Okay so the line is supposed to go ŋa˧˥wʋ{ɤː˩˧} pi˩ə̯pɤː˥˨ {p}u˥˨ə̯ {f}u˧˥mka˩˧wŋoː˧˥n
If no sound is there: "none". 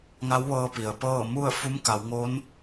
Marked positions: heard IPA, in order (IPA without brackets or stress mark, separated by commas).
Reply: ɤː˧, m, f